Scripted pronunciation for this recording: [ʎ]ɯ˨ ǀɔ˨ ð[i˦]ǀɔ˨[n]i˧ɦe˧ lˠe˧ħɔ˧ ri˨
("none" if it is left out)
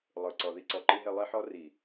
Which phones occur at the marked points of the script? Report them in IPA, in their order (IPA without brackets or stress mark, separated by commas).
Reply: lˠ, i˧, ǃ